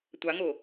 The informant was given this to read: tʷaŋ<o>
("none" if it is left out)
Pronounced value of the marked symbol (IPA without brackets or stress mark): o